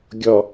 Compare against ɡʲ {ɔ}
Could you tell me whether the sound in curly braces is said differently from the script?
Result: no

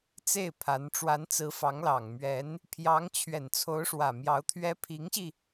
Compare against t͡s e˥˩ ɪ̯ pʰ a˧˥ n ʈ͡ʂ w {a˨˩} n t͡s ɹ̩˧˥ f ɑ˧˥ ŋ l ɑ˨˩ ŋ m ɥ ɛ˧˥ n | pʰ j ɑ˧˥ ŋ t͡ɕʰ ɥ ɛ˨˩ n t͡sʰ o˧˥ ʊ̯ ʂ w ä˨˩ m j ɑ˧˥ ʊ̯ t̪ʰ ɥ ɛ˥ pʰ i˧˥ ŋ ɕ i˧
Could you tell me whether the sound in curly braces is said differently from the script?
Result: yes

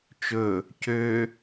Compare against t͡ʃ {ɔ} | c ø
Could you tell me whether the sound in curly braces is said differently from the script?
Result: yes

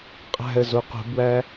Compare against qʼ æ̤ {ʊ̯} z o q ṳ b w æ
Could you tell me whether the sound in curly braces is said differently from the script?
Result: yes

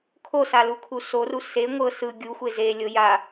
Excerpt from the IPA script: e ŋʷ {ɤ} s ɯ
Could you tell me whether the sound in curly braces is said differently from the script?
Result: no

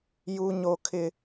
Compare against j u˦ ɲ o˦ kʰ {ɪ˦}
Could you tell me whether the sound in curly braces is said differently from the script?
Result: no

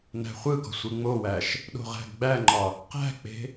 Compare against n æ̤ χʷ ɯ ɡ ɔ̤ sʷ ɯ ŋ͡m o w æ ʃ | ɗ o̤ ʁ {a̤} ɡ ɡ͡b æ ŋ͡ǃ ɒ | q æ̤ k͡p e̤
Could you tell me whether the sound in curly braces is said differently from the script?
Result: yes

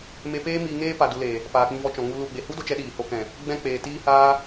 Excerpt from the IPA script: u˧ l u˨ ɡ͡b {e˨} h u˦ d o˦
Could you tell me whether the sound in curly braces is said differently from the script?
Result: no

